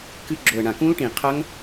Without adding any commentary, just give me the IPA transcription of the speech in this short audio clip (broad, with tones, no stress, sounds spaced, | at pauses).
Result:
k ɨ˦˥ ɡ͡ǁ o˨˩ ə̯ ɳ ã˨˩ k ũ˦˥ l ʈ ĩ˨˩ qʰ ɐ˦˥ ŋ